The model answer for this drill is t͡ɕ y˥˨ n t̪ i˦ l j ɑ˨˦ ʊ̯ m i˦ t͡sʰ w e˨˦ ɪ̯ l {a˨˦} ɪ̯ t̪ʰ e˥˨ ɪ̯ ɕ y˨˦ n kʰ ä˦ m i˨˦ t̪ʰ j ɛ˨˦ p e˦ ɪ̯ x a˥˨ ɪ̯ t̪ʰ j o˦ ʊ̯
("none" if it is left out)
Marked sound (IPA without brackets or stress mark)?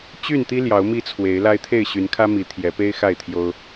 a˦